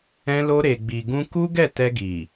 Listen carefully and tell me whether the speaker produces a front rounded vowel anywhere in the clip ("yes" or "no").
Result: no